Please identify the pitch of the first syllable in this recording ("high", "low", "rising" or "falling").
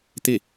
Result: falling